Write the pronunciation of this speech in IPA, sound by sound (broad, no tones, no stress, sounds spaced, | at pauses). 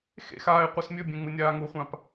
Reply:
x ḛ x aː ɪ̯ qʷ ɨ s mʲ ɵ bʲ ẽ ŋ͡m ɨ nʲ aː ŋ u χʷ ã p